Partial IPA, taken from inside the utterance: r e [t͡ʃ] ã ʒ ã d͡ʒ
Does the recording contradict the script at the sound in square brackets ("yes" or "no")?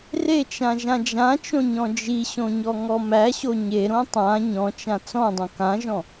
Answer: no